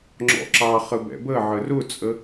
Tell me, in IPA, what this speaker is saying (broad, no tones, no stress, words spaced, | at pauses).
ŋ͡ǁɔ̰ǁɑχə bɛ̰bəʕə rʊt͡sʼə